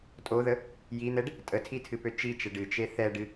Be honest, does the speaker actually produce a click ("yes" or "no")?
no